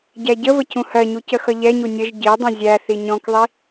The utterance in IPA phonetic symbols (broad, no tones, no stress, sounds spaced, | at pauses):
ɟ æ ɟ ə v ə c ũ h ɜ ɲ u c ə x ʌ ʎ ɛ ɲ u nʲ ə ʒ ɟ i dˤ ĩ zʲ æ θ i ɲ ɔ̃ k ðˤ i